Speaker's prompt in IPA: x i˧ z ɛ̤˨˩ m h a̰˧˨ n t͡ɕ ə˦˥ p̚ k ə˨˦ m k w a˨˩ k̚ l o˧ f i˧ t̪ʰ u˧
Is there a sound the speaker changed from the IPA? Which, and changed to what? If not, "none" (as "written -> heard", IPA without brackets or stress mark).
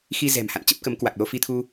none